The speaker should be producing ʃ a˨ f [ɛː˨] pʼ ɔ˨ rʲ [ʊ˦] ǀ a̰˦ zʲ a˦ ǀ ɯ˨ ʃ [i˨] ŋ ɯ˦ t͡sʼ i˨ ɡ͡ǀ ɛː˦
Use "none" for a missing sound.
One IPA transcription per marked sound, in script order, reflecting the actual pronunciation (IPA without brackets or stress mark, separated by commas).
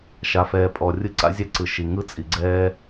ɛː˨, ɯ˦, i˨